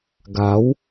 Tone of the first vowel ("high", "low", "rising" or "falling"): rising